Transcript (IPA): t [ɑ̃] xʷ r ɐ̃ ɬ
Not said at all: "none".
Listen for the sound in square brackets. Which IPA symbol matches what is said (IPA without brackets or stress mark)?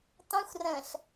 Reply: ɑ̃